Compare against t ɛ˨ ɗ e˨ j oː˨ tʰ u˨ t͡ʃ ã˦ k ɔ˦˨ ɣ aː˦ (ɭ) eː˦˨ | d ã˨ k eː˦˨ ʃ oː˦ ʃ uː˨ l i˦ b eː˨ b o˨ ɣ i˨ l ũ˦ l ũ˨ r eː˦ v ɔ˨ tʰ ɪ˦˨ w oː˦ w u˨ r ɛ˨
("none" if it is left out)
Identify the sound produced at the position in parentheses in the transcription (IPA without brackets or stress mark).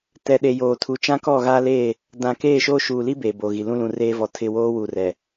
l